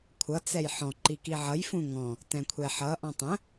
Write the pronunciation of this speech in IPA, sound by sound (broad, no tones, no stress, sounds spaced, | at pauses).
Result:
kʷʰ ʌ t͡s ɛ j ħ ɔ̃ ǃ i k i ʕ ʌ j f ũ ŋ ɔ̃ | t ɛ̃ kʷʰ ɛ ħ ʌ ʔ ɔ̃ tˤ ə̃